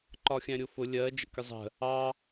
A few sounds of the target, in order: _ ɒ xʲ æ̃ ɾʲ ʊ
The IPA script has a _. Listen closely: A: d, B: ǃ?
B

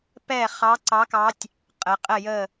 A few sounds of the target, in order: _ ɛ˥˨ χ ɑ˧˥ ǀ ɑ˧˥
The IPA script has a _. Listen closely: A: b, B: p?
B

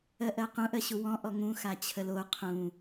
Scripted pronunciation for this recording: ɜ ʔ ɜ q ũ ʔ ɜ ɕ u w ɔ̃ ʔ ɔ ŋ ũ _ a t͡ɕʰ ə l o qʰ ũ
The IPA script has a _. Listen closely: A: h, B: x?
B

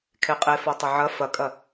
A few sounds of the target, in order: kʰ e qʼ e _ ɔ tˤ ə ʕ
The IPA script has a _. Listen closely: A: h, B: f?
B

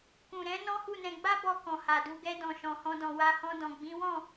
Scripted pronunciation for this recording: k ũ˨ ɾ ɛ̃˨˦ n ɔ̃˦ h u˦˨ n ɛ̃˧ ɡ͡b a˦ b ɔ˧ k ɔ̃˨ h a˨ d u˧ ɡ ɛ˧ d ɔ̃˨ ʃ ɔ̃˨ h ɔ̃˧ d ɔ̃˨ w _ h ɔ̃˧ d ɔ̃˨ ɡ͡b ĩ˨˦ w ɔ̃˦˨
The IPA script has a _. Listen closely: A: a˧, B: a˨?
A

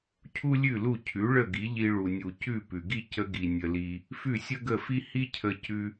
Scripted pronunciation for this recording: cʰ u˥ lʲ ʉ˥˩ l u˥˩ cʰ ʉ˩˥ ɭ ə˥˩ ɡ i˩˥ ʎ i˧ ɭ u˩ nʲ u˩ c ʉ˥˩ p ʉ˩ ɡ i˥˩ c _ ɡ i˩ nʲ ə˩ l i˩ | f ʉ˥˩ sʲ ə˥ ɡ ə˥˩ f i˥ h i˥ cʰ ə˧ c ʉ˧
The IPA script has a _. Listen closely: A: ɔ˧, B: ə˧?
B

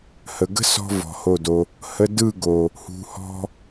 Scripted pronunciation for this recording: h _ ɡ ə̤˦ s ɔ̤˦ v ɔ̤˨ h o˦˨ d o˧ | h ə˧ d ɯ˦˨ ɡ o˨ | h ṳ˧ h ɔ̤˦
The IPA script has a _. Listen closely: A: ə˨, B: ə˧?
A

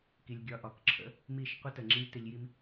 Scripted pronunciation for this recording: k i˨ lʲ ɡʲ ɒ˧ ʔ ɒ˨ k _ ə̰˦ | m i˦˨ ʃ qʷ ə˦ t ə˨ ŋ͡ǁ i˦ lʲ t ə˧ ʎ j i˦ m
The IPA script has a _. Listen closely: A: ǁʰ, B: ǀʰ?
A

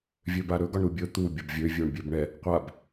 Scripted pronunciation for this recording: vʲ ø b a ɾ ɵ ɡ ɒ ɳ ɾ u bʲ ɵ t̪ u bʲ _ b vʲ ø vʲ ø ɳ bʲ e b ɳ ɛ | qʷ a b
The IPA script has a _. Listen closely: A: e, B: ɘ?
B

